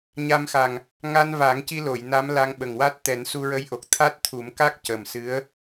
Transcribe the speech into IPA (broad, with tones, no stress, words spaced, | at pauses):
ɲa˧mxa˨˩ŋ | ŋa˧nva˨˩˦ŋci˧lo˨˩˨j na˧˥m la˧ŋɓə˨˩ŋwa˦˥t̚ t̪ɛ˨˩˦nsu˧ɹə˧˥jʔo˨˩k̚ t̪ʰa˦˥t̚t̪ʰu˨˩˦mka˦˥k̚ cə˨˩msɨ˧˥ə̯